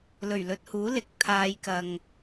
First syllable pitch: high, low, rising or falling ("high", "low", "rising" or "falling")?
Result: low